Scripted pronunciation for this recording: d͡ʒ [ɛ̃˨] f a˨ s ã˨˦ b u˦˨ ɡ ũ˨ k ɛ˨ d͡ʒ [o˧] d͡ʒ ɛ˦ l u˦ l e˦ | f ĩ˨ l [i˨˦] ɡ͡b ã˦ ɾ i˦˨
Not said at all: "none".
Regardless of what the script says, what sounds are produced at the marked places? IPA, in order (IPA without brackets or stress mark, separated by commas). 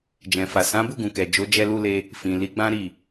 ɛ̃˨, o˨˦, i˨˦